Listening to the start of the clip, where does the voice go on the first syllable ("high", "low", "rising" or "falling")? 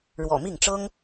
low